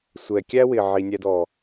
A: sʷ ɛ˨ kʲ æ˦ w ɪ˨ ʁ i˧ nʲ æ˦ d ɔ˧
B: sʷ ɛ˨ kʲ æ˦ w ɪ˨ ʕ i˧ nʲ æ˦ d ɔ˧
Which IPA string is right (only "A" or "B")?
B